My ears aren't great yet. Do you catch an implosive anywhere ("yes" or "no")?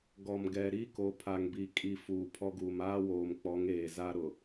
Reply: no